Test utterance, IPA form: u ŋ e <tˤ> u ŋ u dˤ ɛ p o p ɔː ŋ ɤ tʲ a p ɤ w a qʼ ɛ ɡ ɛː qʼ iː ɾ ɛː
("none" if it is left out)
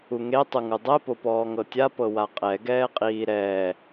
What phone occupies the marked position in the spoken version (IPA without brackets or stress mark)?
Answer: tˤ